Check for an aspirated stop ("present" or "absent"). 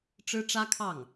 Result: present